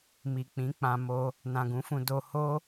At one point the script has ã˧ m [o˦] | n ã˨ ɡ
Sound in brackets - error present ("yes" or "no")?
yes